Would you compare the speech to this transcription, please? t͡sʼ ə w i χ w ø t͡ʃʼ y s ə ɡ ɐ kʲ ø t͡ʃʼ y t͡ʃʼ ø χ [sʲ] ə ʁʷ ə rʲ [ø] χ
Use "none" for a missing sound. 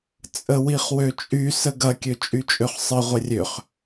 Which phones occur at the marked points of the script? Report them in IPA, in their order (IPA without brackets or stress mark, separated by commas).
sˤ, ø